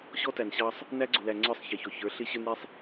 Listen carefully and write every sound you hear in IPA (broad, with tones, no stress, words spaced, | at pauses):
ɕɔ˦tæ˨nɕɑ˦sˤ | næ˦ɡ͡ǀʊ˨læ˨ ŋ͡ǀə˞˦˨sˤ çɛ˨çɔ˨çə˞˨˦ ɬɪ˦ ɕə˞˦n ɾi˦sˤ